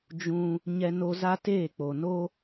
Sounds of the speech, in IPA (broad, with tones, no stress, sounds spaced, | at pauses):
d͡ʒ ũ˦ | ɲ ɛ˦ n o˦ z a˦ t eː˦˨ k͡p o˨ n o˦